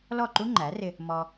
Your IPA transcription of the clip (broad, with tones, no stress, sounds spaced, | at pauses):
l ɔ˥˩ ǃ u˥ ŋ͡ǃ æ˩˥ r ɪ˧ | m ɔ˧